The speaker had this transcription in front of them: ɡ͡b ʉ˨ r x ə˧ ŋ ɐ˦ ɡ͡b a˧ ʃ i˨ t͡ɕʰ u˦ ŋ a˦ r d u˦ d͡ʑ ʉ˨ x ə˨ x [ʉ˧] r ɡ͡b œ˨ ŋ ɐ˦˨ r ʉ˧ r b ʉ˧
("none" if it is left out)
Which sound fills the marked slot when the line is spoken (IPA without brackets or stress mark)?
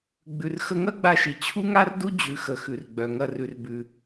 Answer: ʉ˨